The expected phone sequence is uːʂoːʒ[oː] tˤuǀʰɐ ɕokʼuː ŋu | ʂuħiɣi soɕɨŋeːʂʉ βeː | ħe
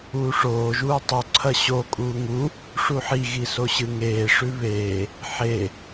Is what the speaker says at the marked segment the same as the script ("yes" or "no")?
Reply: no